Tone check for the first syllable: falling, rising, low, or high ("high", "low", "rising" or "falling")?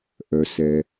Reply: low